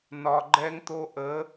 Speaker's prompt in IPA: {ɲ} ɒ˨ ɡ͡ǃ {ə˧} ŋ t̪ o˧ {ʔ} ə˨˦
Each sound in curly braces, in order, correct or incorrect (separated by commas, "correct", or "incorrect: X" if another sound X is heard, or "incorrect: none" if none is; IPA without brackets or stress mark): incorrect: n, incorrect: ɛ˧, correct